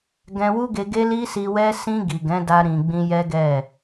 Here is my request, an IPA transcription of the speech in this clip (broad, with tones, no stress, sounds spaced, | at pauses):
ɡ ɛ̃˧ w u˦ ɡ e˧ ɡ e˦ l i˦ s i˧ w ɛ˦ s ĩ˧ ɡ i˨ ɡ ɛ̃˨˦ d a˧ ɾ ĩ˨ ɡ͡b ĩ˧ j ɛ˦ ɡ ɛ˦˨